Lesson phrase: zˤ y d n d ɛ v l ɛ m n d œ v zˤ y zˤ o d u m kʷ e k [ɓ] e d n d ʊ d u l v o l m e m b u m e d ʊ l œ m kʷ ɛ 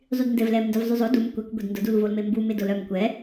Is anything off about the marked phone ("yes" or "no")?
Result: yes